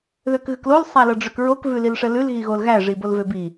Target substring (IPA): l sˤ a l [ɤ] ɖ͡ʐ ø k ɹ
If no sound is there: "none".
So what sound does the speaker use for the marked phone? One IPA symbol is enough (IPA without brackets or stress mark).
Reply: ɤ